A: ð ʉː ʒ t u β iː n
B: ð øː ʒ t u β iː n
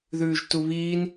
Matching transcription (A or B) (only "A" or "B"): A